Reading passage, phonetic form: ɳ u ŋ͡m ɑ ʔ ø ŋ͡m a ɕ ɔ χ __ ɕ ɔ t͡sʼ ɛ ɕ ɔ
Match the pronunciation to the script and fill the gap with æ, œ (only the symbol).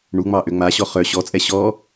œ